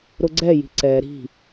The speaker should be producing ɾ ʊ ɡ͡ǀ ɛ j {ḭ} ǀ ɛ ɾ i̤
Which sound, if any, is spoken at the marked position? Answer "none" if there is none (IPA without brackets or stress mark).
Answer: i̤